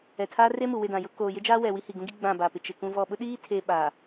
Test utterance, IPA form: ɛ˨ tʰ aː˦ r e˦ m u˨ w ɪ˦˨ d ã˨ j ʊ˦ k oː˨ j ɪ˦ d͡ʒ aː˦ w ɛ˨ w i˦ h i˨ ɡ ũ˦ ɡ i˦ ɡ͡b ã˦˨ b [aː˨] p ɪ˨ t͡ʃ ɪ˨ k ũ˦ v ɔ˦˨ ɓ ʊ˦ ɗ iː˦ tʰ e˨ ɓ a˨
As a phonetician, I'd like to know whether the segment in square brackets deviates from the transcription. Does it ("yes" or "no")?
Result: no